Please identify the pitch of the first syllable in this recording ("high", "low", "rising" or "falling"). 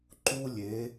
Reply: high